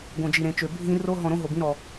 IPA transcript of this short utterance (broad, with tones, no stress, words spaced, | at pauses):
ɡõ˧d͡ʒi˧ɾẽ˧t͡ʃø˧ bʱĩ˦ ro˦ɦɔ̃˧ɾõ˦ ɦo˧bĩ˦ɾɔ˧